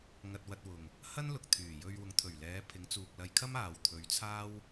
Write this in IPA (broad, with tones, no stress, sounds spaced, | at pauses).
ŋ ɐ˧ t̚ w ɐ˧ t̚ w ʊ˨ ŋ | h ɐ˥ n l ʊ˨ k̚ t̪ʰ yː˨˩ j ɵ˧ ɥ w ʊ˨˥ ŋ t̪ʰ ɵ˨˩ ɥ l ɛː˨˧ pʰ ɪ˨˧ ŋ t͡s uː˨ k̚ l ɐ˧ j kʰ ɐ˥ m aː˨ w t̪ʰ ɵ˨˧ ɥ t͡sʰ aː˥ w